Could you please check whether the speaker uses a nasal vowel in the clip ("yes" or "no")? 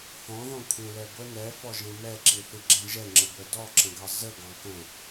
yes